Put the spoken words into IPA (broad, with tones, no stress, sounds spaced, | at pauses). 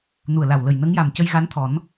n u˨˩ ə̯ l a˨˩ w l ə˨˩ j n ə˧˥ ŋ j a˨˩ m c ə˧ j ɣ a˧˥ n t̪ʰ ɔ˨˩˦ n